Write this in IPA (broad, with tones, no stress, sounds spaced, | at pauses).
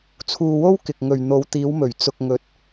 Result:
t͡sʰ uː˧ w o˥ w k ɪ˨ k̚ ŋ ɵ˨ ɥ n̪ o˨˧ w t̪ iː˨˧ w m ɵ˨˩ ɥ t͡s ʊ˨ k̚ ŋ ɵ˨˥ t̚